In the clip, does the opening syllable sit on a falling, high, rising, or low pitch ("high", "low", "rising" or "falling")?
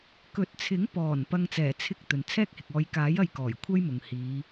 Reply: rising